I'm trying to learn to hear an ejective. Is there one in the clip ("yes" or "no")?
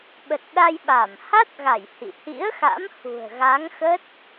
no